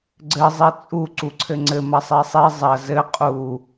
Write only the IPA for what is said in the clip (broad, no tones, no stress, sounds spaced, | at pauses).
ɡ͡ǀ ɘ zˤ i t͡sʼ u ǀ u ǀʰ ɘ ŋ͡ǀ ɘ m ɐ sˤ i sˤ i zˤ ɐ z ɘ qʼ u